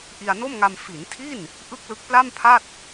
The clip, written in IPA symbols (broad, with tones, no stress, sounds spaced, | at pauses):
ʔ i˧ a̯ n o˥˩ m ŋ a˧ m f i˩˦ n tʰ i˥˩ n | ʔ ɯ˥˩ k̚ l ɯ˦˥ k̚ p l a˥˩ m pʰ a˥˩ t̚